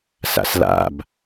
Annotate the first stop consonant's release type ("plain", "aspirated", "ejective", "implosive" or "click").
plain